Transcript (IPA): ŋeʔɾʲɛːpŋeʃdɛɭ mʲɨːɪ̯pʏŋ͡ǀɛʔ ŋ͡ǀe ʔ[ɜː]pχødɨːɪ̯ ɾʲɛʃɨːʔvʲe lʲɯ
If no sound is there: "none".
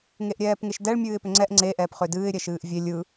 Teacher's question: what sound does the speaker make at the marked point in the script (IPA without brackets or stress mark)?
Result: ɛː